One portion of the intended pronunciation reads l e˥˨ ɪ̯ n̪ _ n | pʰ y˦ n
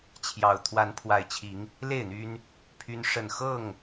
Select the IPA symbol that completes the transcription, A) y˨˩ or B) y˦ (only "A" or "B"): B